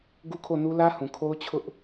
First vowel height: high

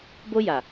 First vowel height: mid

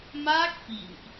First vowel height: low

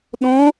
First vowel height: mid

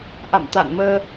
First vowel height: low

